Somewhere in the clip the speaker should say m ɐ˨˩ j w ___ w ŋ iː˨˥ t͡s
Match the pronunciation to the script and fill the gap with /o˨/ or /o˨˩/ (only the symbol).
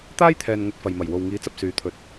o˨